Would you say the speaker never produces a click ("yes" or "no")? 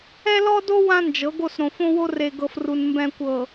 yes